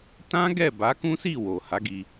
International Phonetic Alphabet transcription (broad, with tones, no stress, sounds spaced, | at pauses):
t ã˦ ɡ ɛ˦˨ b a˨˦ k ũ˦ s i˦˨ w o˨ h a˨˦ ɡ i˧